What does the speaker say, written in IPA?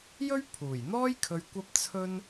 j ɵ˥ ɥ pʰ uː˨˩ j n̪ ɔː˥ j kʰ ɵ˧ ɥ kʷ ɐ˥ p̚ t͡sʰ ɵ˥ n

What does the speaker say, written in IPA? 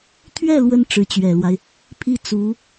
t̪ʰ ɥ ɛ˥˩ l w ə˧˥ n ʈ͡ʂ ɻ̩˧˥ t͡ɕ ɥ ɛ˨˩ l w a˦ ɪ̯ | pʰ i˥˩ t͡s u˧˥

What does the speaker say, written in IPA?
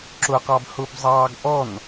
ǁ ʊ q ɑ b h ʊ b zˤ ɑː ɡ ʔ ɔ n

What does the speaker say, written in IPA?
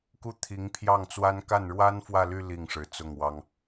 k u˥˩ t̪ʰ i˧˥ ŋ pʰ j ɑ˥˩ ŋ t͡s w a˥ n k a˥˩ n ɻ w a˥ n f w ä˥˧ l y˥˧ l i˥˩ ŋ ʂ ɻ̩˧˥ t͡s ʊ˥˩ ŋ w ɑ˥ ŋ

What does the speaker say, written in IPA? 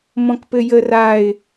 m ɔ̃ k p ɘ j ə r a ɪ̯

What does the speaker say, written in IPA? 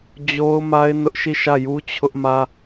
d͡ʑ o˦ ʊ̯ m a˦ ɪ̯ n ʊ˦ ʔ ʃ i˦˨ ʃ ä˦˨ j u˦ t͡ɕʰ ʊ˦ ʔ m ä˦

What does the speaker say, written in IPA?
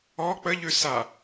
ɔ k͡p ə ʎ ʉ s a

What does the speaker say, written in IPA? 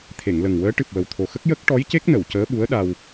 t̪ʰ e˨˩˨ ŋ l ə˨˩ ŋ w əː˧˥ ʈ ɨ˨˩ p̚ w ə˨˩ w t̪ʰ o˨˩ x ə˦˥ k̚ j ə˦˥ k̚ ʈ ɔ˧˥ j c e˦˥ k̚ n ə˨˩˨ w c əː˧˥ ɓ u˧˥ ə̯ ɗ a˧ w

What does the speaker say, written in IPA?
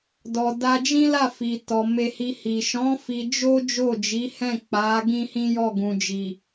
d ɔ˨ d a˧ d͡ʒ ĩ˦ l a˦˨ f i˨ t ɔ˨ m e˧ h i˧ h i˨ ʃ ɔ̃˨˦ f i˧ d͡ʒ o˦ d͡ʒ o˦˨ d͡ʒ i˨˦ h ɛ̃˦˨ k͡p a˨˦ ɡ ĩ˦ h ĩ˦ j ɔ˦˨ ɡ ũ˨ d͡ʒ i˨

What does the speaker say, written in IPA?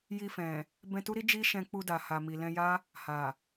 j i˧ f ɛ̃˨ | b ɛ̃˧ t u˦ ɾ i˦ d͡ʒ i˦ ʃ ɛ̃˧ k͡p u˧ d a˨ h a˨ m i˨ l ɛ̃˧ j a˦ | h a˨

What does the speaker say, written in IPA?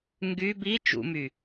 ŋ ɡ y b i t͡ʃ ṵ m y

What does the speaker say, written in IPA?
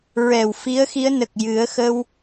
ɹ ɛ˨˩ w f i˧˥ ə̯ x i˧˥ ə̯ n ə˨˩ k̚ j ɨ˨˩˦ ə̯ x ə˧ w

